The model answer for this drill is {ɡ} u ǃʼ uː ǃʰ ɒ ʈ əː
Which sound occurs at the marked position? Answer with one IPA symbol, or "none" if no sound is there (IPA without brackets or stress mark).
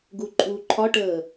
ɡ